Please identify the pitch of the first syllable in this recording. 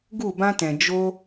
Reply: falling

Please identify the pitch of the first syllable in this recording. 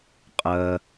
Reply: low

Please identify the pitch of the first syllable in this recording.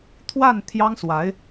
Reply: falling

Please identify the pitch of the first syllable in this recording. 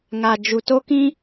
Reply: low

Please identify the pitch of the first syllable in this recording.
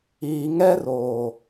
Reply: low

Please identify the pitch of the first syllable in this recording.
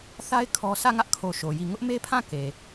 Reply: high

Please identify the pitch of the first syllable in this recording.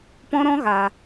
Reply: high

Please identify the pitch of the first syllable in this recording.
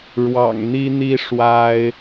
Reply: low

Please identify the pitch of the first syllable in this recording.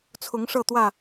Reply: rising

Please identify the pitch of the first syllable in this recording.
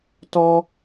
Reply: high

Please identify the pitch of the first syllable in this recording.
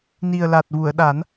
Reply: low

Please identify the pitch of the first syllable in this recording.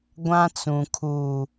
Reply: high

